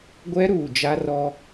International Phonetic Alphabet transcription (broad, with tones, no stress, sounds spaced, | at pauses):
ɡʷ ɛ˦ ɾ uː˨ d͡ʒ a˦ r ɔ˦